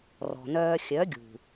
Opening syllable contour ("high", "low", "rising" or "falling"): low